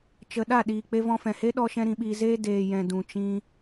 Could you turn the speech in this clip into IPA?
t͡ʃ ə˨ ɗ a˦˨ ɗ iː˨ k͡p e˧ v ɔ̃˧ f ɛ̃˨ h e˦ ɗ ɔ˧ ʃ ɛ̃˧ ɾ ĩ˧ ɓ iː˧ z eː˦ d eː˨ j ɛ̃˨ d ũ˨ t͡ʃ ĩ˧

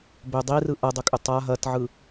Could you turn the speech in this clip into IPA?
b ʏ dˤ i r ɯ ʔ ɐ dˤ ʏ kʼ ʏ tˤ a ɦ ɐ t ʕ ɯ

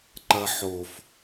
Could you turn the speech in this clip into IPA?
ǃ ɐ ħ o f

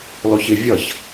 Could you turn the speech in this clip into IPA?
l ɔ ç ɪ vʲ ʌ ç

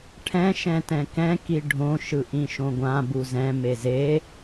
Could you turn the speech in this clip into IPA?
ʈʰ ɛ̃ ʃ ɛ̃ t ɛ̃ k ɛ̃ k i ɖʱ õ ʃ ɯ ʔ ĩ ʃ õ ɡʷ ã b u z ɛ̃ m e z e

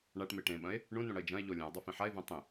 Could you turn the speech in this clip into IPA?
ɳ a ʈ m e ʈ ẽ ɓ ɐ̃ e̯ | ɳ ũ n ũ ɽ ɐ e̯ d͡ʒ ɐ̃ e̯ ʎ o lʲ ẽ o̯ dˤ o f ĩ ħ a e̯ v ẽ tˤ ĩ

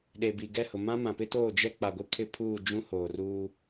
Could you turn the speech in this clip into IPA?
ɗ e˨ b i˨ ɡ ɛ˦˨ h ʊ˨ m ã˦ m ã˨ p ɪ˦ t oː˦˨ d͡ʒ ɛ˦ k͡p a˨ ɡʷ ɪ˦ kʰ ɪ˦ pʰ uː˦˨ d͡ʒ ũ˦ h oː˨ r uː˦

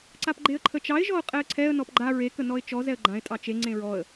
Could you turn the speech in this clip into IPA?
ǀ a p ɡ͡ǃ e ə̯ ǃʰ ə t͡ʃ ɑ ɪ̯ ʒ ɔ ʊ̯ qʼ ɛ ə̯ ǀʰ ɛ ə̯ n ɔ p ɡ͡ǃ a ɹ e k ə n ɔ ɪ̯ t͡ʃ ɔ z ɛ ə̯ ɡ͡ǃ ã ɪ̯ tʼ ɑ t͡ʃ e ŋ͡ǀ ẽ ɹ ɔ ə̯

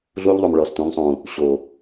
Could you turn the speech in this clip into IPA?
ɮ uː˦ ʎ ðˤ u˨ m ɭ ɔː˨ s t ũ˨˦ ŋ sˤ ũː˨ | ɕ oː˨

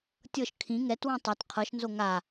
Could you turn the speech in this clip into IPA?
tʲ ɤ ʃ kʰ ĩ ŋ ɛ t w ũ tˤ ɤ t qʰ ɤ ʃ n z o ŋ a

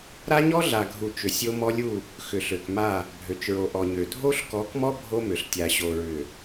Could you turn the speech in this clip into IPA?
ɾ a˦ ɲ ɔ˦ ɮ a˨ ɡʱ u˨ t͡ʃ ʏ˨ sʲ o˦ m ɔ˦ lʲ u˦˨ | x ʏ˨ ɬ ø˨ k m a˦˨ | bʱ ø˨ t͡ʃ ɹ o˨ ʔ ɔ˨ ɲ ø˨ dʱ o˦ ɬ k ɔ˨˦ k m ɔ˦ bʱ o˦ m ʏ˨ ɬ tʲ a˨ ɕ o˨ ɹ ʏ˨

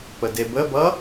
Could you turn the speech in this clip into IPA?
p ə d e b ə b ʌ

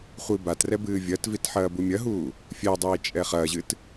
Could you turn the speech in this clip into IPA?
χʷ i b a t r ɛ b ɨː vʲ ɐ t v i t ħ ɐː b u mʲ ɐ ɦ uː | fʲ ɛ dˤ iː t͡ʃʼ ɛ χ ɐː ʑ ɨ t

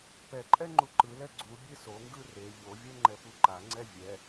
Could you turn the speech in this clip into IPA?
p ɛ ǃʼ ɛ ŋ͡ǃ u ǃ ɯ l ɛ ɡ͡ǀ u bʲ e s o ŋ ɡ ɯ r e ʎ o vʲ ɛ ŋ͡ǃ ɛ p u ǃ a ŋ͡ǀ ɛ vʲ ɛ

